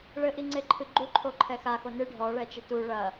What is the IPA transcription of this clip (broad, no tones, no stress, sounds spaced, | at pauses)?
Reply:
ɭ ɘ ʔ i ŋ͡ǀ e ǃʰ ɨ ɡ͡ǃ u ǃʰ o ǃʰ ɛ x a x o n ɨ ɖʱ ɔ ɭ ɛ t͡ʃ ɘ t u ɭ ɐ